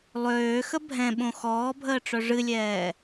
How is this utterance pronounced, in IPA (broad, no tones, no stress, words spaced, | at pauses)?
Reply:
lˠøːxə bʱɛ̃ɓõ xɔːbʱəːʈ͡ʂœ ʐɨlʲɛː